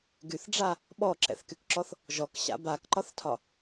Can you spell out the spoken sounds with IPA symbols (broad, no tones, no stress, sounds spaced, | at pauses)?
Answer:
ɡ y θ ɖ͡ʐ a | ɓ ɔ ǁ ɛ̰ θ k y k ǁ ɔ θ | ʒ ɔ k ɕ a̰ b a k ǃ ɒ θ tʰ ɒ